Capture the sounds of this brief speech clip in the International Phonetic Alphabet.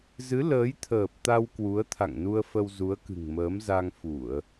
zɨ˨˦ ləː˨˦jt̪ʰəː˨˩p̚t̪a˧w kwu˨˦ə̯t̪ʰa̰˧˨ŋnu˧ə̯ fə˧wzu˨˦ə̯kɨ̤˨˩ŋməː˨˦m za˧ŋfu˧˩˨ə̯

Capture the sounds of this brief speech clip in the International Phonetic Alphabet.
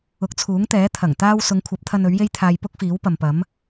ʊ˨˥k̚t͡sʰuː˨˥ŋt̪ɛː˨˥ t̪ʰɐ˨˩ŋt̪aː˥w sʊ˨˧ŋkʷʰɐ˨˥p̚t̪ʰɐ˧n ɵ˨˥ɥje˥jt̪ʰaː˧j pʊ˥k̚fiː˨˥wpɐ˨mpɐ˨˥m

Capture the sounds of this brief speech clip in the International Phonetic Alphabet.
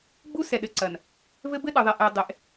ɡ͡bu˦sɛ˨ ɗɘ˨˦ǀɐ˨n | vɘ˦ bɘ˦ɗɯ˨ðˤɛ˨ʔɛ˨ dˤe˨ʔ

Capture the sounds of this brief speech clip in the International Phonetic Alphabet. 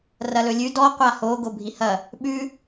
rɐlɵlʲʉ dɔ qʷaho ɡobʱihɐ | ɓʉ

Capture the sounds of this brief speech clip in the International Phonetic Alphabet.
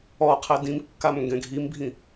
ɔqʰɛ dĩmkːam ŋɡɛ̃ɡʱimbʱĩ

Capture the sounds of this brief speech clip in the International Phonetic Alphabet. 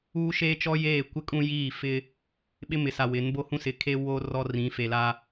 uː˦ʃeː˦t͡ʃɔ˦ jeː˦˨kʷɪ˦kʼũ˦jiː˦˨ fɪ˦ | ɓɪ˦mɪ˨sa˨ wɪ˨˦n bo˦hũ˦sɪ˨kʰe˦ wo˦ rɔ˦rĩ˨˦fe˨la˦

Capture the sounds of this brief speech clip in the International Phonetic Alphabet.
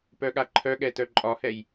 pœɠaǃʰœɠɛ tœǃʼɒhɛj

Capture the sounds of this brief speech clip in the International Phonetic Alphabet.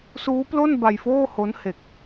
suː˦˥plo˥˩n ba˧jfoː˥˩ho˦˥n he˨˩k̚

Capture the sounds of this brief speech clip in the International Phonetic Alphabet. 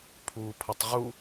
pʰuːpʰʌtˤʁu

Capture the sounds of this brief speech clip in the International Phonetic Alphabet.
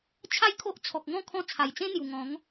t͡ɕʰa˥˧jkʰo˦ʔ t͡sʰɔ˨k̚ŋɔ̃˥˧ kʰɔ̃˦ t͡sʰa˨˩jt͡sẽ˦ n̪ju˨˩ ŋɔ̃˨˦ŋ

